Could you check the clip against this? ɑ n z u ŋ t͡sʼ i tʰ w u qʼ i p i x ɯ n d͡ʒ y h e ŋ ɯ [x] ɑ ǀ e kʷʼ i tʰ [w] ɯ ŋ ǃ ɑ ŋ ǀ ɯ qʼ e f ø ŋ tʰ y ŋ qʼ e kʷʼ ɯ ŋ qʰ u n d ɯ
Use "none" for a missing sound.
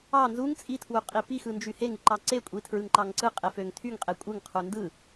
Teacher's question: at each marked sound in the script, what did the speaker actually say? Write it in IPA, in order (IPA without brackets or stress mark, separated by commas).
ǃ, ɹ